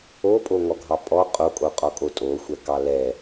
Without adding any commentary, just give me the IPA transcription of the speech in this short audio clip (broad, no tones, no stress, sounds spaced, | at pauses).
o pʼ o ŋ ɔ ɡʱ ɑ pʼ ɔ qʼ o kʼ o qʼ ɔ kʼ o tʼ o xʷ ɛ k ɑ l ɛ